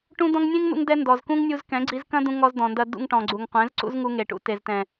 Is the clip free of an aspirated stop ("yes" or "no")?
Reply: yes